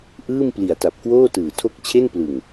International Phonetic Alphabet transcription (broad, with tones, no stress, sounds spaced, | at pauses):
ʔ ɯː˥˩ m p l i˩˦ a̯ t a˨˩ p̚ k w oː˥˩ t ɯː˨˩ tʰ o˥˩ k̚ t͡ɕʰ e˥˩ n p l ɯ˨˩ ŋ